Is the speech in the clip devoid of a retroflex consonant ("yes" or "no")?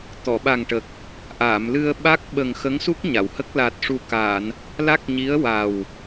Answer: no